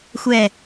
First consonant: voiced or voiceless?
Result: voiceless